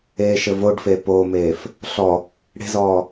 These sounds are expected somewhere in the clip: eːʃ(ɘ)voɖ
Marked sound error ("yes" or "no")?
no